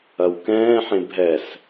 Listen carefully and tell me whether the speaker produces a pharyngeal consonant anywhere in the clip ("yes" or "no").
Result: yes